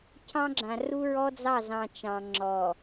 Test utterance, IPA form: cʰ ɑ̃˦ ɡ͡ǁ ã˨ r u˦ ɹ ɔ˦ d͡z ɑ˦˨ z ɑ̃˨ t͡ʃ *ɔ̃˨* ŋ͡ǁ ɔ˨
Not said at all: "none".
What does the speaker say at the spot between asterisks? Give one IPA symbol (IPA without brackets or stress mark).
ɑ̃˨